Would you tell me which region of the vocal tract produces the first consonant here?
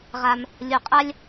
uvula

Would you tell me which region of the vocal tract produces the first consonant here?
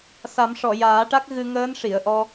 tongue tip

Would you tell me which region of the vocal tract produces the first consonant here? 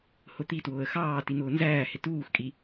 throat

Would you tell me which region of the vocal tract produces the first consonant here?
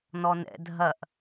tongue tip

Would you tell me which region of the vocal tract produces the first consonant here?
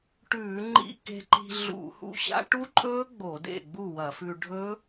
retroflex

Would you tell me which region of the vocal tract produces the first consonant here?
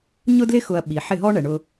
palate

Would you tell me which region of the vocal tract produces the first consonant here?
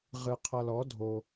uvula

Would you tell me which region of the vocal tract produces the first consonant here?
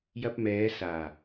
palate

